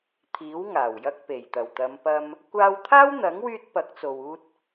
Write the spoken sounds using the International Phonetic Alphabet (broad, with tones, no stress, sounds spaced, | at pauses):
t̪ʰ iː˨˥ w ŋ aː˨˩ w j ɐ˧ k̚ p e˨˩ j t̪ ɐ˨˩ w t̪ ɐ˨˧ m p ɐ˧ m | kʷ aː˧ w t̪ʰ aː˥ w n̪ ɐ˨˥ ŋ w yː˧ t̚ p ɐ˨˥ k̚ t͡s o˨ w uː˧ t̚